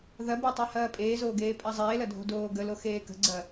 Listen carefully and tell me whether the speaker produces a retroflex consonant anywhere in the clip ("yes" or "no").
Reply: no